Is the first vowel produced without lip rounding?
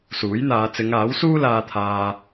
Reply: no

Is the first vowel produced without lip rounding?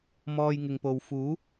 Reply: no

